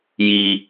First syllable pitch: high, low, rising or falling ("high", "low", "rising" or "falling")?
high